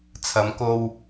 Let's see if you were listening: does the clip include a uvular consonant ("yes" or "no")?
no